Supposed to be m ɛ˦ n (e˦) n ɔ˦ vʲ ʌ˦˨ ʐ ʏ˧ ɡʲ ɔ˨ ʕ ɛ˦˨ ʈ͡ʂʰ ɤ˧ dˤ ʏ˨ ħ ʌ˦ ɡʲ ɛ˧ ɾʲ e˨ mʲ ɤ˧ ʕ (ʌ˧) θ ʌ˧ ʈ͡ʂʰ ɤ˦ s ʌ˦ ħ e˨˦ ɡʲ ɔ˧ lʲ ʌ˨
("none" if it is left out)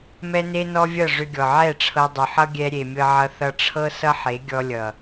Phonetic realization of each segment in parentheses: e˦, ʌ˧

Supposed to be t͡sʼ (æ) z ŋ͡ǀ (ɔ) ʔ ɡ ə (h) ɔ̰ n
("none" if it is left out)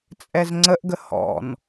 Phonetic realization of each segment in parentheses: ɛ, ə, h

